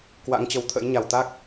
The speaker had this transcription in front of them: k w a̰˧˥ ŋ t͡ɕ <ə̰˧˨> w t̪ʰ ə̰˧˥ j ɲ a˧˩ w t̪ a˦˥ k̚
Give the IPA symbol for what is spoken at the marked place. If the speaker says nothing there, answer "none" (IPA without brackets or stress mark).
ə˨˩